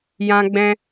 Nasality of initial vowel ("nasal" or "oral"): nasal